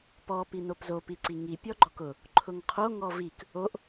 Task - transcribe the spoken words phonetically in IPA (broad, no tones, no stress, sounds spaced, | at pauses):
p ɔ p i n o p z o p i ǀ i ŋ i pʲ ɔ ɡ͡ǃ ɔ k ʊ | ǃʰ ʊ ŋ qʰ o ŋ ɔ v i k | o ʔ